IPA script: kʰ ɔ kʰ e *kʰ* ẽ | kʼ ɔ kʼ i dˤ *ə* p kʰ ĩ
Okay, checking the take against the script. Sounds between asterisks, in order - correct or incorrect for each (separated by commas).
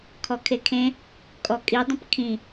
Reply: correct, incorrect